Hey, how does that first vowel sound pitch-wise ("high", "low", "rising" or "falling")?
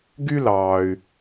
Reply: high